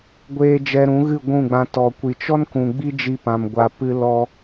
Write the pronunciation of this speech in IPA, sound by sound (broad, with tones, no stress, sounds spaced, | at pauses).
ɡʷ eː˧ d͡ʒ ɛ˧ ɾ ũ˨˦ ɣ ɨ˦˨ ɡʷ ũ˦˨ ɡ͡b ã˧ t ɔ˨ kʷ i˨ t͡ʃ ɔ˦ n k ũ˨ ɡ͡b i˦ d͡ʒ i˧ p ã˨ m ɡʷ a˨ p ɨ˧ l ɔ˧